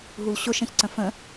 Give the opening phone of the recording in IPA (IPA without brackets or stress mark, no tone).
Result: ɦ